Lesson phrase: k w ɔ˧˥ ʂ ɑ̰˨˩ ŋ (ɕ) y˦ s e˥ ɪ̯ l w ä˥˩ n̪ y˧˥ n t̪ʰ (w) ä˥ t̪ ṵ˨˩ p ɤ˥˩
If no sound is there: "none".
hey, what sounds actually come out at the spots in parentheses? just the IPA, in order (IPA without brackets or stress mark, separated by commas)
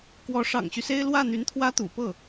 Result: ɕ, w